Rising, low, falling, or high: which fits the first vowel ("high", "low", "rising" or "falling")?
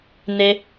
high